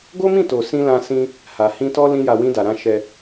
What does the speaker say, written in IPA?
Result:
ɡ o˦ m ĩ˦˨ t o˨ s ĩ˧ l ã˧ s ĩ˧ | h a˨ h ĩ˧ t ɔ˦ l ĩ˦ j a˧ w ĩ˧ d a˨ ɾ ã˧ ʃ ɛ˧

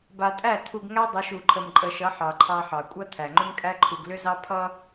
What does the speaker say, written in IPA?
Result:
b a˨ tʼ æ˦˨ tʰ u˨ ɡ ŋ æ˦ dˤ ʏ˨˦ ʃ u˨ ǃʰ ə˨ m ǃʼ ə˨ ʃ ʌ˨˦ ħ ɑ˨ ǃʰ ɑ˦ ħ ɑ˨ kʷʼ ʌ˦ tʰ æ˨ ŋ͡ǃ ʏ˦ m kʼ æ˦ ǃʰ u˨ ɡ l ʏ˦ z ɑ˦ pʰ ʌ˦

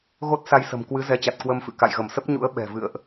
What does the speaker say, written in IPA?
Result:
ɣ o˦˥ t̚ s a˧ j s ə̤˨˩ m k w ɨ˨˦ z ɛ˨˦ t͡ɕ a˨˩ t̚ k w ə˧ m f ɨ̰˧˨ k a̰˧˨ j ɣ ə˧˩ m s ə˦˥ p̚ ɲ ṵ˧˥ ə̯ ɓ ɛ̤˨˩ v ɨ̰˧˨ ə̯ ʔ

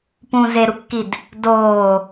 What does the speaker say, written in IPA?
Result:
p ũ z e ɾ u kː i d | d oː

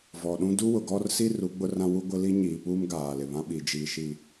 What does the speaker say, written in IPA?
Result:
v ɔ˨ ɗ ũ˦ d u˦ w ʊ˨ ɡ ɔ˦ r s i˦ r u˨˦ ɡ͡b ʊ˦ r ã˦ w u˦ ɡʷ ɪ˦ l i˦ ɲ iː˨ p uː˦ m ɡ aː˨ l ɪ˨ β ã˦ ɓ i˨ d͡ʒ iː˨ ʃ i˨

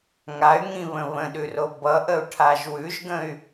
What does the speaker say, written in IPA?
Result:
ŋ a y̯ ŋ ĩ β ə̃ β ə̃ ɗ ʉ r o b ʌ ʔ ə u̯ ʈʰ a ʒ w ʉ ʒ ɡ ə̃ y̯

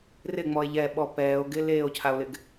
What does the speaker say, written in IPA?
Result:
r ɪ ŋ͡m ɔ e̯ ʎ ɛ ɓ ɔ p ɛː o̯ ɡ ɪ l eː o̯ cʰ a o̯ l ɪ ɡ

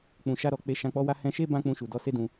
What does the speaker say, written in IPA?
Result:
k͡p ũ˨ ʃ a˧ ɾ ɔ˨ k͡p e˧ ʃ ã˧ k͡p ɔ˦ w a˦ h ɛ̃˧ ʃ e˦ b ã˦ k͡p ũ˧ ʃ u˨ d ɔ˧ s e˦ d ũ˧

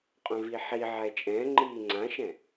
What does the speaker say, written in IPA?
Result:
qʼ œ̃ v i ħ i ʕ ɛ t͡ʃʼ ɛ̃ ŋ͡ǃ iː ŋ͡ǀ ã ʃ ɛ̃

